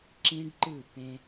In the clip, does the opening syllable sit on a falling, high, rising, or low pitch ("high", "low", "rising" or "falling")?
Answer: high